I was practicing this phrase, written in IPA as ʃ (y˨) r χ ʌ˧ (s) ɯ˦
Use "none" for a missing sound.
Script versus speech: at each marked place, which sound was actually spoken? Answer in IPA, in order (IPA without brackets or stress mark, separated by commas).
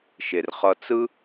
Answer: e˨, t͡s